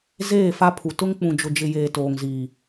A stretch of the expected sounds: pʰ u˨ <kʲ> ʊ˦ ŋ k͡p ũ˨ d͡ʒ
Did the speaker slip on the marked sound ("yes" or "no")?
yes